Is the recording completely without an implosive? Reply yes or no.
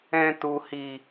yes